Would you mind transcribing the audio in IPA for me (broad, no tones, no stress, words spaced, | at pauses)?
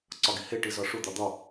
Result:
ǀɒɡihe ʈizɒʂu d̪ɒd̪ɒ